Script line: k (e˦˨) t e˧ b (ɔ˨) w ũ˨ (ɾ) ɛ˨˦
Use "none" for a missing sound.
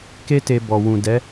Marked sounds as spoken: e˦, ɔ˨, d

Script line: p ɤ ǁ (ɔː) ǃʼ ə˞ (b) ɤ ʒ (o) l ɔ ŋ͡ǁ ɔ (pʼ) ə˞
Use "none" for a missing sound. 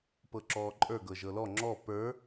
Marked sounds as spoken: ɔː, ɡ, ɤ, p

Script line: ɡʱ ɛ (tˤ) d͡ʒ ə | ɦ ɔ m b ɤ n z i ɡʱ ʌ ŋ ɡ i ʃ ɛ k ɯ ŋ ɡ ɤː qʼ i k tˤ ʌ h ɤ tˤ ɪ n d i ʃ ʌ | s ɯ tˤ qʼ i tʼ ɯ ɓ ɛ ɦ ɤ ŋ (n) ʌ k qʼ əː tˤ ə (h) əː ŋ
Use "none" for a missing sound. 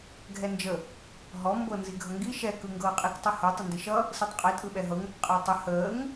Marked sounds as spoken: n, ɾ, h

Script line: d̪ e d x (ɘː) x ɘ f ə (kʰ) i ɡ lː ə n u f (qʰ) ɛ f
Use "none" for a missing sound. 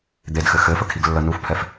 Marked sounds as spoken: ɘ, kʰ, pʰ

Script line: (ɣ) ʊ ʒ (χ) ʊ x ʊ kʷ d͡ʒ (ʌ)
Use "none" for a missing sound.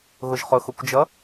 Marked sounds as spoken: ɣ, χ, ʌ

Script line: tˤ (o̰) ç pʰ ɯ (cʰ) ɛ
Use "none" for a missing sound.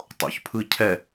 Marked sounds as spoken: o̰, cʰ

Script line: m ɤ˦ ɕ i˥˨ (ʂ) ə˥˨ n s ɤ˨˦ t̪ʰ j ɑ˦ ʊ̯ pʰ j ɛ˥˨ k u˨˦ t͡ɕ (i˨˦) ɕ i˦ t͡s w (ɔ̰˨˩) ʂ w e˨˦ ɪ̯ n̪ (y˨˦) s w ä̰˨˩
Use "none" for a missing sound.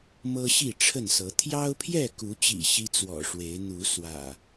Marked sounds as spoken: ʈ͡ʂʰ, ḭ˨˩, ɔ̰˨˩, u˨˦

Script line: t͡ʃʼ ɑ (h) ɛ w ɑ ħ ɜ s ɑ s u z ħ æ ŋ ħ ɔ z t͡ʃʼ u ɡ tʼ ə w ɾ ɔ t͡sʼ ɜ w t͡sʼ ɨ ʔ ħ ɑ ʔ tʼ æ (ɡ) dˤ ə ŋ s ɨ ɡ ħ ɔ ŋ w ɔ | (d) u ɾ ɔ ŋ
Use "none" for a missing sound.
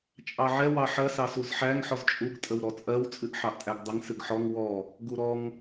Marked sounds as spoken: ʕ, ɡ, ɡ

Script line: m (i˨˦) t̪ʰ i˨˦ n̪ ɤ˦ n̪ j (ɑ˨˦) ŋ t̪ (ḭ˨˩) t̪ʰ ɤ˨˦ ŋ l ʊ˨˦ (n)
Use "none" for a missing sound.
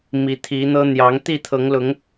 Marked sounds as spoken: i˨˦, ɑ˨˦, i˥˨, ŋ

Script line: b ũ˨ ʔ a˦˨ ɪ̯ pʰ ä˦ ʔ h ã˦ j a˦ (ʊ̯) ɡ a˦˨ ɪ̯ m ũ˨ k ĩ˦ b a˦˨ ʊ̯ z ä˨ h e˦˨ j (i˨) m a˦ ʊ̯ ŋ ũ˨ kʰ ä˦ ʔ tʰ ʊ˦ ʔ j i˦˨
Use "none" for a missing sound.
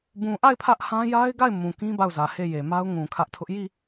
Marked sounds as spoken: ɪ̯, e˨

